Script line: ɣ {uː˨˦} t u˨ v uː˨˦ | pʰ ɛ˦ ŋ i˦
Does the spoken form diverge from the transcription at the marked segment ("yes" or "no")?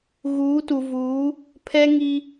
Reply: no